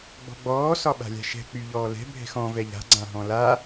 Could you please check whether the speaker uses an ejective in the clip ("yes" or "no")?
no